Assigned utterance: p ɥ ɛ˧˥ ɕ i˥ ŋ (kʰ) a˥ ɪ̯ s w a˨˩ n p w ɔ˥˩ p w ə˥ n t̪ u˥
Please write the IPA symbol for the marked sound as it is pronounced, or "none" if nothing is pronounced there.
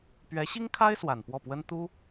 kʰ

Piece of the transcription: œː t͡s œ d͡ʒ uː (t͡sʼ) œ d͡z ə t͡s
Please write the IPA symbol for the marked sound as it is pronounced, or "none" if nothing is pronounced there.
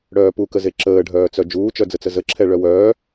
t͡ʃ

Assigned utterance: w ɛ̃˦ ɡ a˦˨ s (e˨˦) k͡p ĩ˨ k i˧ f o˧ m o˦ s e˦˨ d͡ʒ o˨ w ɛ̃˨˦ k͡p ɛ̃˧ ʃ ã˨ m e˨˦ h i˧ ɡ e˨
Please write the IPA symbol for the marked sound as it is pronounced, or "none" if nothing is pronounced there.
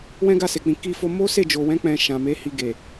e˨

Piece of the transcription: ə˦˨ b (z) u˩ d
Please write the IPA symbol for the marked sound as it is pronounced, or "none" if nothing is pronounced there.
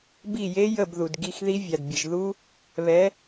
ð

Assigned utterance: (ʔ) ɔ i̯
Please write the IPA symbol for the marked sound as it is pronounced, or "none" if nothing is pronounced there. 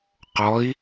q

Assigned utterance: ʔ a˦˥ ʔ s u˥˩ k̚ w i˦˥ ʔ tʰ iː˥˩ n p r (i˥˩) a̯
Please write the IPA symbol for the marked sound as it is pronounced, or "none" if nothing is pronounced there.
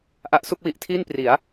i˩˦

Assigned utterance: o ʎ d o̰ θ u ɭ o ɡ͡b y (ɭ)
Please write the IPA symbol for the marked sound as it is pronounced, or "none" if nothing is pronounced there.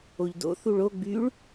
ɭ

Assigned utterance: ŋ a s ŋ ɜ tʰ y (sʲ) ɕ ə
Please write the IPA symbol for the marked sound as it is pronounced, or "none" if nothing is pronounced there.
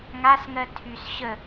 s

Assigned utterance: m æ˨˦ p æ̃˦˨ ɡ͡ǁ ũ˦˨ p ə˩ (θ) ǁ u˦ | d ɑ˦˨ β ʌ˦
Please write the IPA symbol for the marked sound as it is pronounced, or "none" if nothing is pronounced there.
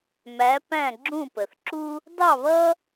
θ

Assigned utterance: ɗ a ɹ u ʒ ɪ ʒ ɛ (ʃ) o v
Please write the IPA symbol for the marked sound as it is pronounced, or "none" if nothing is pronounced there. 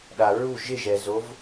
z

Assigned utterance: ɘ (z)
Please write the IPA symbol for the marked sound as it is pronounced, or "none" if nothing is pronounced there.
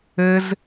z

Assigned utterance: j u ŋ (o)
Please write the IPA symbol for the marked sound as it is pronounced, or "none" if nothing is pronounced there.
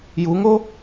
o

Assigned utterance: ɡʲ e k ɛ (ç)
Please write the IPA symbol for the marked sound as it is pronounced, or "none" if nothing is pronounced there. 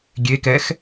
x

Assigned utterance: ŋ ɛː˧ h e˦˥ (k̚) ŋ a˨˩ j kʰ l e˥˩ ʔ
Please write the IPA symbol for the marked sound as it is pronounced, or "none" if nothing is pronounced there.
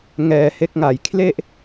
k̚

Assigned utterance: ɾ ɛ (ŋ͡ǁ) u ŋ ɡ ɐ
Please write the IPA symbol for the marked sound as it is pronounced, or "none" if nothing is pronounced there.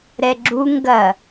ɡ͡ǁ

